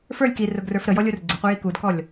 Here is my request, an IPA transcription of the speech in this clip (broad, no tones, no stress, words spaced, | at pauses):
fə˞lʲ kirʊɡrə˞f ɾəjɔlʲur ɡ͡ǀɪqʷɪji kudkɔlʲ